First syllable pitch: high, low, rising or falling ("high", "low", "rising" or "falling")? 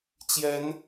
rising